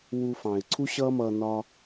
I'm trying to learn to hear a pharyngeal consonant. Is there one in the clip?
no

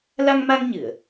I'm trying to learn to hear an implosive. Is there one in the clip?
no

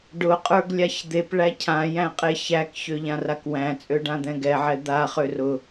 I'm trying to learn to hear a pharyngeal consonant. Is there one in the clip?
yes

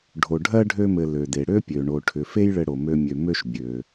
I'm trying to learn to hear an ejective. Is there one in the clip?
no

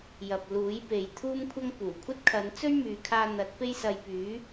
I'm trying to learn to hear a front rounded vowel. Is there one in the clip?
yes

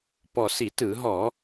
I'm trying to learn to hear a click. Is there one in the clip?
no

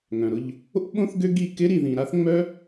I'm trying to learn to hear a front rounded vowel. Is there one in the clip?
yes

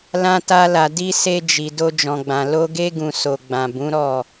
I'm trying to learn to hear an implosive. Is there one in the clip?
no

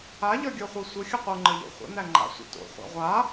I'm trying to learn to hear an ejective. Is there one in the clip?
no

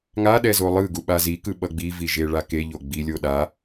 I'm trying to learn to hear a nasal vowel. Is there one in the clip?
no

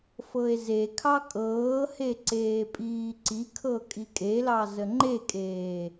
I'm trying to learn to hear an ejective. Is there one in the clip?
yes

